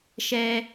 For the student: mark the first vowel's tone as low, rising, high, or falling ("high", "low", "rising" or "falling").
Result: high